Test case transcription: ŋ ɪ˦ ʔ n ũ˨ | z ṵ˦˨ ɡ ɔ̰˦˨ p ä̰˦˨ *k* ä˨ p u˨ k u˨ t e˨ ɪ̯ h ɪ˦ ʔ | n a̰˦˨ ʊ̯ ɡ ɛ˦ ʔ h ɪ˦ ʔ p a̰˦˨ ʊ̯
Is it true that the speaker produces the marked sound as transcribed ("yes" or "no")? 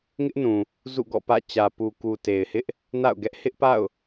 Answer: no